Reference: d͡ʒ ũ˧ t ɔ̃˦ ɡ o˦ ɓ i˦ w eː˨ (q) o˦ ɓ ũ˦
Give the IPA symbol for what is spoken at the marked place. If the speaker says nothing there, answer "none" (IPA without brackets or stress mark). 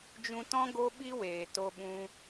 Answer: t